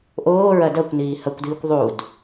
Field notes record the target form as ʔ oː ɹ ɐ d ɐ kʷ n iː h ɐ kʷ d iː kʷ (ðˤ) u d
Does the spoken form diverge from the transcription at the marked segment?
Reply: no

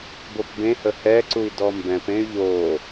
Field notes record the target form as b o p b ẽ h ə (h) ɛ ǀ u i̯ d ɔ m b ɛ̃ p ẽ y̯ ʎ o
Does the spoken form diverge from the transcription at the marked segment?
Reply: no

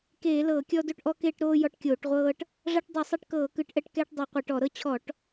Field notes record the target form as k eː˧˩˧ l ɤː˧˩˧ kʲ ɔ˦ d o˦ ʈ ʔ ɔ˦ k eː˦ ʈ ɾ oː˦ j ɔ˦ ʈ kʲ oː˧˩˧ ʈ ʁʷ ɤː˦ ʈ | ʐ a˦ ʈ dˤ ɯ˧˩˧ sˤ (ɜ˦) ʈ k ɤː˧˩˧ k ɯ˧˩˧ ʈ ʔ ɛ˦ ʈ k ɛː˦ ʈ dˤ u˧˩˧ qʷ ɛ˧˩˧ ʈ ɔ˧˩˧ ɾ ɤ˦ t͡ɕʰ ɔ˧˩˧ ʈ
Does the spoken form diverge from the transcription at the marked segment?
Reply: yes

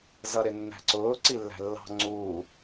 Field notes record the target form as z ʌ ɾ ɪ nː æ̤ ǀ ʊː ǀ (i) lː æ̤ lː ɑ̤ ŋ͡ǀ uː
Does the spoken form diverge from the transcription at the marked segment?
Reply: no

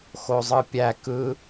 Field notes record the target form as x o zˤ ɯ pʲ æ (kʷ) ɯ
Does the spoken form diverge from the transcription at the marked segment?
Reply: yes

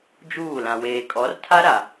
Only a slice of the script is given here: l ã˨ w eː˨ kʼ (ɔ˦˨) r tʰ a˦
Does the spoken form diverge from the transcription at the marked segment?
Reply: yes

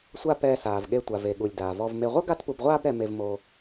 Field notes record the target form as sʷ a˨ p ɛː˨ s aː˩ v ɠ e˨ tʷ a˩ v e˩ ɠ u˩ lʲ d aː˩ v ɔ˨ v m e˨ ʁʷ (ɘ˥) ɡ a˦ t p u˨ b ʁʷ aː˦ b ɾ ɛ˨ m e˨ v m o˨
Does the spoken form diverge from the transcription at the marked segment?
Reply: no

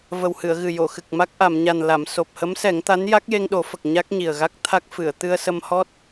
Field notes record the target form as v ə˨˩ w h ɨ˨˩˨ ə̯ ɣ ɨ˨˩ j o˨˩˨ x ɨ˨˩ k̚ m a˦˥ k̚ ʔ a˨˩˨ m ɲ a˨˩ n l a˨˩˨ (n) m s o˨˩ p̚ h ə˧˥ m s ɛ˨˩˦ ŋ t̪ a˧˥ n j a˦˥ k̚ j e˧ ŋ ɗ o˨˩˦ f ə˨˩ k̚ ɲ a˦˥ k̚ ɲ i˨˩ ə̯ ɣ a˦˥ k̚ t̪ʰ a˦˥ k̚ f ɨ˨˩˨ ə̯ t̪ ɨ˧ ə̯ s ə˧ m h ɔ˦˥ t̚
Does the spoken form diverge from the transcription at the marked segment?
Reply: yes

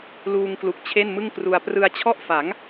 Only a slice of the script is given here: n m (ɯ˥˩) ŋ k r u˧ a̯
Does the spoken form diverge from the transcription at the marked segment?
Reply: no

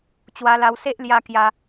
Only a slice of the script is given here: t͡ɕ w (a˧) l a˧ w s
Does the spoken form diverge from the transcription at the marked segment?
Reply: no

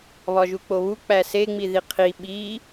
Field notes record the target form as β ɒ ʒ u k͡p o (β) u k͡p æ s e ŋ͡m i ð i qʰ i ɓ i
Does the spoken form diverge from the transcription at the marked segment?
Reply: no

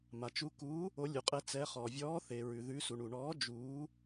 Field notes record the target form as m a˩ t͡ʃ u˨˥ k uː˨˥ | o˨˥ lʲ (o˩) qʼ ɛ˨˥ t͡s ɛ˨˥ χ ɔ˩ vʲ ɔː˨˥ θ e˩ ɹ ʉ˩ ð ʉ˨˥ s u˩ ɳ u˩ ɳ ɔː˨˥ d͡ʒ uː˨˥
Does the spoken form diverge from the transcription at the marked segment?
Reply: yes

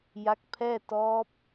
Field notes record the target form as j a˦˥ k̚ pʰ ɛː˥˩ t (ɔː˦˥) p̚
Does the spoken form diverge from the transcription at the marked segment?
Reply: no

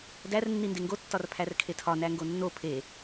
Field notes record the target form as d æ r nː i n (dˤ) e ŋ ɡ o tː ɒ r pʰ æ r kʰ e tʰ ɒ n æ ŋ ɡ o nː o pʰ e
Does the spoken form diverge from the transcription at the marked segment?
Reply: yes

